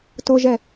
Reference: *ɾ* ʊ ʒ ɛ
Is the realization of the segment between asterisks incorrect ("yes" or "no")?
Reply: yes